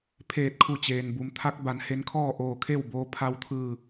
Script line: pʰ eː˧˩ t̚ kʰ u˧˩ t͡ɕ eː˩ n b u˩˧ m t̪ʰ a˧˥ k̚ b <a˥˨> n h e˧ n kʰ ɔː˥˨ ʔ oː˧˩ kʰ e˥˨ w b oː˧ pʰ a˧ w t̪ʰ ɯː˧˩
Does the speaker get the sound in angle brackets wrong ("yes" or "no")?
yes